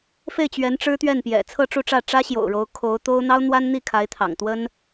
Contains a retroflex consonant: yes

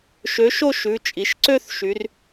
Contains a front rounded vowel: yes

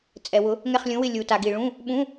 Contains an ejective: yes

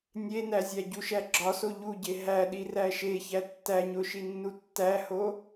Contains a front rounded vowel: no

